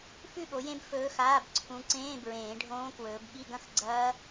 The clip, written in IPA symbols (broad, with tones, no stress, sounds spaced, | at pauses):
f ʉ˥˨ ɠ o˨˦ j ẽ˦˥ b f ɵː˦˥ x aː˧˥˧ b ǀʰ ũ˨˦ ǀ ẽː˧˥˧ b ɹ ẽː˨˩˦ ɖʱ õː˦˥ k w ɵː˨˦ b ɠ i˧˥˧ ɡ ɐ̃˥˨ x ɡ͡ǀ ɐː˦˥